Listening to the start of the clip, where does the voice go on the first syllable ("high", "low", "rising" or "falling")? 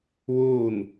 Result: falling